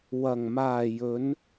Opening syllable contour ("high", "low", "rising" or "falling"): low